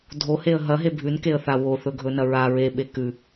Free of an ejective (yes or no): yes